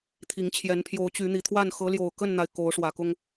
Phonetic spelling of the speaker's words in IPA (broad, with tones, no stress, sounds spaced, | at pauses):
t̪ʰ i˨˦ ŋ t͡ɕʰ j ɛ˨˦ n pʰ j o˨˦ ʊ̯ t͡ɕ y˨˦ n̪ i˨˩ t̪ʰ w a˥˨ n x ɤ˨˦ l j o˨˩ ʊ̯ k ə˥˨ n n̪ a˩ ɪ̯ k o˨˦ ʊ̯ ʂ w ä˨˩ k ʊ˦ ŋ